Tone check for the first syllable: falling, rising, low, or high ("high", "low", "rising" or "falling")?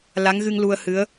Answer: rising